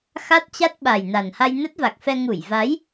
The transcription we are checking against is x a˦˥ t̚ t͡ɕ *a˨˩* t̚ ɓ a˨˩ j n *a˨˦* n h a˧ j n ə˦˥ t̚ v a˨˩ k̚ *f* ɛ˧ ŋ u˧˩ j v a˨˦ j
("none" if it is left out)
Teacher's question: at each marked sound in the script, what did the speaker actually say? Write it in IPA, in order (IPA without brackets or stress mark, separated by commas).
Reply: a˦˥, a˨˩, f